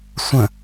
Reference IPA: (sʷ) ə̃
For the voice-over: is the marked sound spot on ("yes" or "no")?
yes